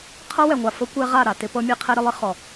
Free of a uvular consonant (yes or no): no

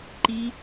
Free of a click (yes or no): no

